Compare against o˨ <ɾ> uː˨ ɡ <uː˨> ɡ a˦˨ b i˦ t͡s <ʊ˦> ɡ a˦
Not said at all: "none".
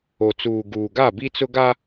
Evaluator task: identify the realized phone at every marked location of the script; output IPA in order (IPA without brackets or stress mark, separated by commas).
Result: t͡s, uː˨, ʊ˦